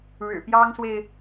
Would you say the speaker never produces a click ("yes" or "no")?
yes